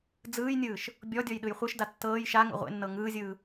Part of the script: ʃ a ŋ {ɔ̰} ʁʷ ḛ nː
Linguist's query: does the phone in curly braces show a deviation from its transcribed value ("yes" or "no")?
yes